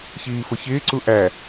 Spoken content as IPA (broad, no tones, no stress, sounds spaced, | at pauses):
ç iː f ʊ ç ɪː ǀ u ʔ æ